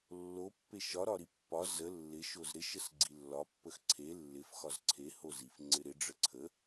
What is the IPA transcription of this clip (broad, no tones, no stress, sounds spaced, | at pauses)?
lː o pː e ʃ ɒ ɾ ɒ ɾ i pː ɒ z ə lː ɪ ʃ o z ɾ ɪ ʃ ə s ɡ͡ǀ i lː ɒ pː ə x ǀʰ e lː ɪ f x ɒ z ǀʰ e h o z i f ŋ͡ǀ ɪ ɾ ɪ ɖ͡ʐ ə ǀʰ ə